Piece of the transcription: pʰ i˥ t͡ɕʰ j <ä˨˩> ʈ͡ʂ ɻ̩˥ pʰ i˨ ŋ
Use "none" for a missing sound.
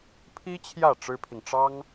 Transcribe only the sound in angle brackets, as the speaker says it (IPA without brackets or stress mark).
ä˥˩